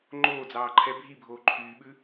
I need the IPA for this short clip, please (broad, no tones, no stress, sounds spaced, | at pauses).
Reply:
ŋ͡ǃ oː d͡z ɑː ǃʰ ɛ bʱ i bʱ oː ǃʰ yː ɓ ʉ